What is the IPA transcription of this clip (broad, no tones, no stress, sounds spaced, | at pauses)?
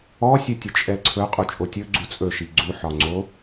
ɔ sʲ ɵ tʲ ɵ t͡ʃʼ ɛ ǀʰ ɵ qʼ u t͡ʃʼ o tʲ ɵ ɡ͡ǀ u t͡sʼ ɵ ʃ i ɡ͡ǀ u ħ ɒ ŋ͡ǀ o